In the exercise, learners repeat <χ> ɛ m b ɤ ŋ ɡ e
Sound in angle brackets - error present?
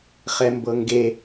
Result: no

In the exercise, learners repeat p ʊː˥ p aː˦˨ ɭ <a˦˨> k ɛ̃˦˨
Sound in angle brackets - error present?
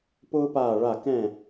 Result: no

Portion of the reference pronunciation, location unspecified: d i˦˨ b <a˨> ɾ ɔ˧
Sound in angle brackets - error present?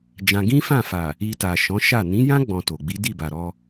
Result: no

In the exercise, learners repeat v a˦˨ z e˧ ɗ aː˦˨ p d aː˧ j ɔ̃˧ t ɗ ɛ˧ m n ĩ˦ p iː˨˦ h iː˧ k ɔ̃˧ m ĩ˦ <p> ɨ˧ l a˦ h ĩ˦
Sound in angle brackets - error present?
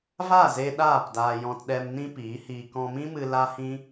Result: yes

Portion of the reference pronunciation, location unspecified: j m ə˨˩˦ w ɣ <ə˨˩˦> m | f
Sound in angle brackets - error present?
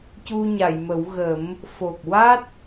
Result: no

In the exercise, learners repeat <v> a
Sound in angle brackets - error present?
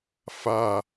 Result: yes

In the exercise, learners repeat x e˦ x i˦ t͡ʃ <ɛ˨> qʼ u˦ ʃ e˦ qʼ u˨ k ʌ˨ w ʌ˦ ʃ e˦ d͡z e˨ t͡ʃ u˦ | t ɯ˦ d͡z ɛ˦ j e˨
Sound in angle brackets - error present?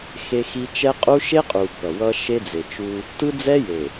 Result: yes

